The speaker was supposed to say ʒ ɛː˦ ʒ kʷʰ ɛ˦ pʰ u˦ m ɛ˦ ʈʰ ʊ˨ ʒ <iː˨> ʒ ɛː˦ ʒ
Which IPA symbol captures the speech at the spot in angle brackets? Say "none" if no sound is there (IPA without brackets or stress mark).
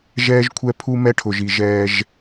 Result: i˨